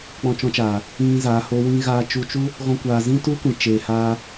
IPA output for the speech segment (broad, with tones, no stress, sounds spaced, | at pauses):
k͡p ɔ̃˧ t͡ʃ ɔ̃˧ t͡ʃ aː˨ | ĩ˦ z a˨˦ h o˦ w ĩ˦ ɣ aː˧ t͡ʃ u˧ t͡ʃ u˦ | ɣ ɔ̃˦ kʷ aː˧ z ĩ˦ t u˦ kʷ ĩ˨ t͡ʃ eː˨ h aː˧